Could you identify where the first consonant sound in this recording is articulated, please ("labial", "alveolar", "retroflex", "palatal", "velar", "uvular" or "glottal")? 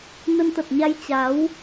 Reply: alveolar